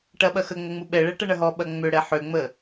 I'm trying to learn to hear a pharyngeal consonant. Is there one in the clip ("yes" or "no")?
yes